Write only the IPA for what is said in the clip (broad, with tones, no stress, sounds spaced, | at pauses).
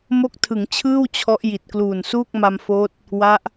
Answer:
m o˦˥ k̚ tʰ ɯ˩˦ ŋ t͡ɕʰ ɯː˥˩ w t͡ɕʰ ɔ˦˥ ʔ j i˨˩ t̚ k l uː˨˩ n s uː˥˩ k̚ m a˧ m f oː˦˥ t̚ | w a˦˥ ʔ